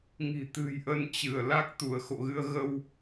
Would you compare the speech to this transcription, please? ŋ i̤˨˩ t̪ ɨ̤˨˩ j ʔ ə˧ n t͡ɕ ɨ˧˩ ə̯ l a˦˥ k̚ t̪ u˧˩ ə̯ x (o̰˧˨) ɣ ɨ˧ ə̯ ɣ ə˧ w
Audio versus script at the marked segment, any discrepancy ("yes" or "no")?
no